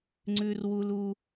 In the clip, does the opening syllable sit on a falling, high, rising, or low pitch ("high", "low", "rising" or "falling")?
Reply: high